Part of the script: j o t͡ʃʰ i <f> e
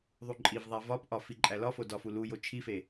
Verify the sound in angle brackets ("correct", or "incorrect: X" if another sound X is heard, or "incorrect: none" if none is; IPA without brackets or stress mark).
correct